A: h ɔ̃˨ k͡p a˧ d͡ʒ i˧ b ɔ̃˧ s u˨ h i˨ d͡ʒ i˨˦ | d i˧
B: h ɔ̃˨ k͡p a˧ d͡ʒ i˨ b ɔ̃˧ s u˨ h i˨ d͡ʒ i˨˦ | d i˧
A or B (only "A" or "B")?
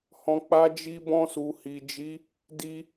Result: A